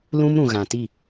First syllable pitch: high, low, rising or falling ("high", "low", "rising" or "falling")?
high